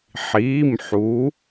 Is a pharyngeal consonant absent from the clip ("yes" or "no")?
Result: no